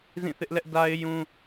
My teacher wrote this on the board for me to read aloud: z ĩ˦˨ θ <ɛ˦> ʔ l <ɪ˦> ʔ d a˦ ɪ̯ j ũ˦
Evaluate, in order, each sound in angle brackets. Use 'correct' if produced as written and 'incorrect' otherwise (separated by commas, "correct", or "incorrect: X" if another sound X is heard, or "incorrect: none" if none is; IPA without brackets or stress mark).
incorrect: ɪ˦, incorrect: ɛ˦